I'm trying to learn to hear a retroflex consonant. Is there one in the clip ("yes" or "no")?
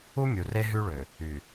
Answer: yes